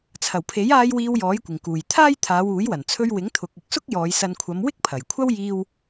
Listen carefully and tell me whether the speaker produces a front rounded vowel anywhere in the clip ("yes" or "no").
no